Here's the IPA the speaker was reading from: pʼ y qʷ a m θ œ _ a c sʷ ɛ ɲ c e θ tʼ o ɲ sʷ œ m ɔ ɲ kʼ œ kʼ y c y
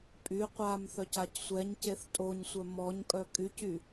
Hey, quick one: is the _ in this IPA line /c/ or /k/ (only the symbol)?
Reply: c